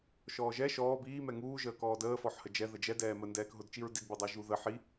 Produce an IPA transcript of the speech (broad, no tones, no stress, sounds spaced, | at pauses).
ʃ ɔː ʒ ɛ ʃ ɔː b iː m ɛ ŋ uː ʒ əː k ɔː d əː f ɔ ħ h ə d͡ʒ ɛ ð ə d͡ʒ ɛ d ɛː m ə n d ɛː k ɦ ʊ d t͡ʃ i ɹ d i d b i dˤ ɛ ʒ u ð ə ħ i